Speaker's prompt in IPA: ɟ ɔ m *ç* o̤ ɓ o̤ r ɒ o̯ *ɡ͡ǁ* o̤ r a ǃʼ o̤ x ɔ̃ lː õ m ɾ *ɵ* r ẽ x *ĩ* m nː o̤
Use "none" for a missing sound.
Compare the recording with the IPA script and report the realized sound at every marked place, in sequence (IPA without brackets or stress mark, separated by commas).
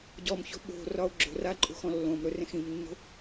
ç, ɡ͡ǁ, ɵ, ĩ